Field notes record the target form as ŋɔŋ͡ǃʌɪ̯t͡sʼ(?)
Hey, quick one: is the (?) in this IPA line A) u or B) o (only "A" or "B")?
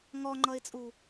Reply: A